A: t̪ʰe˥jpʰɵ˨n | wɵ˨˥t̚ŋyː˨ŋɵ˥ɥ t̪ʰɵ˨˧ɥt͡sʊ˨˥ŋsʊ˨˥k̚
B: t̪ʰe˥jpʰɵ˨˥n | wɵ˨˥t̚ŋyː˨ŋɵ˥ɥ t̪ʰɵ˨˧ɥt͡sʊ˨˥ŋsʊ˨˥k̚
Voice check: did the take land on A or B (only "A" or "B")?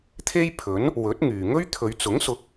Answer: B